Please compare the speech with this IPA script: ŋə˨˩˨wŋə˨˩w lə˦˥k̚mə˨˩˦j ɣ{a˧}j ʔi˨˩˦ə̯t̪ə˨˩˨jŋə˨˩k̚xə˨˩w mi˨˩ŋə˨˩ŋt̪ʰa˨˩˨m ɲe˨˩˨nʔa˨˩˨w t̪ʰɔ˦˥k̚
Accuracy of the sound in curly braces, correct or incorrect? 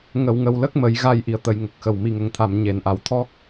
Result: correct